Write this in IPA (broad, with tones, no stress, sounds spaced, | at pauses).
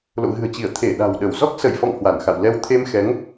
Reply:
l o̰˧˨ ɣ ɨ̤˨˩ ə̯ t͡ɕ i˧˩ ə̯ t̪ʰ e˧˩ ɗ a̤˨˩ w ɗ ə˧˩ w z ɔ˦˥ k̚ s ə˧˩ j f ɔ̰˧˨ ŋ h w a˧˩ n x a̰˧˨ w l ɛ˧ w t̪ʰ e˧ m x ɛ˨˦ ŋ